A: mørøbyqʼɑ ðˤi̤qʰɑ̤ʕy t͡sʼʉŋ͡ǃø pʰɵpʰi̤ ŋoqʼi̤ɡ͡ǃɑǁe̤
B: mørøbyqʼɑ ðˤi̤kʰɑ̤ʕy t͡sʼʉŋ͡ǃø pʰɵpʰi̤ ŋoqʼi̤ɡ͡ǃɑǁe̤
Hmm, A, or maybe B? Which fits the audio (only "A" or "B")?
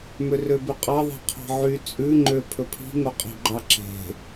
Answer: A